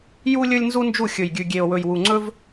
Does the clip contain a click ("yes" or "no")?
yes